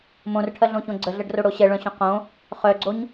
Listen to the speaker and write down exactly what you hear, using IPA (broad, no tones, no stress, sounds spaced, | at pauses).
m õ r ʈʰ ɐ ɮ õ ç õ ɡ͡ǀ ə ɮ ɐ ɖ r o ɽ o ɕ ɛ ɭ œ̃ ɕ õ q õ | χ œ ɡ͡ǀ o ɲ